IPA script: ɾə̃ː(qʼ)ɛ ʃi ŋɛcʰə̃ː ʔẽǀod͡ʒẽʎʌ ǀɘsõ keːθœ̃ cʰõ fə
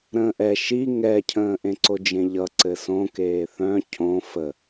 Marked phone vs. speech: incorrect: ʔ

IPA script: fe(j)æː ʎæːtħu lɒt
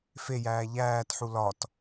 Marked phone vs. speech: correct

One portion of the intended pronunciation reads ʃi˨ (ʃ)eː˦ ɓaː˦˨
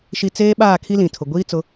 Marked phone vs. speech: incorrect: t͡s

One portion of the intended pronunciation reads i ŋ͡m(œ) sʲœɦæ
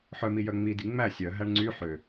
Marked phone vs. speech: incorrect: æ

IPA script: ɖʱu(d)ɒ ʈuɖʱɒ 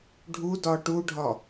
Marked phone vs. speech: correct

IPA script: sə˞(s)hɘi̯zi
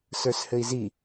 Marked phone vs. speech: correct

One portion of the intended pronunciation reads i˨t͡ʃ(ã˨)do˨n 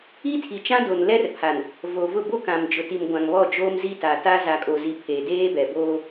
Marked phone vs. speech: incorrect: ã˦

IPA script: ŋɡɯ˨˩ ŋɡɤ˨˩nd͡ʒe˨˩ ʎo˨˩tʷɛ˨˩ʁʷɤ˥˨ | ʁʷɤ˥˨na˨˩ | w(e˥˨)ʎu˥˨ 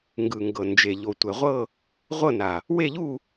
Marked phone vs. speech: correct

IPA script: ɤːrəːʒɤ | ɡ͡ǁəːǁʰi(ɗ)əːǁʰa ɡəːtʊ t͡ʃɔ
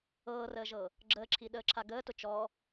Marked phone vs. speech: correct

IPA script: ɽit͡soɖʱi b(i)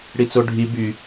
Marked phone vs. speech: incorrect: y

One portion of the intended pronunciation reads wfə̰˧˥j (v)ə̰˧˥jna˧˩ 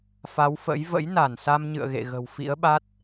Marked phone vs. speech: correct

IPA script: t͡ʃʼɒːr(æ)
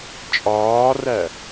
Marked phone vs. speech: correct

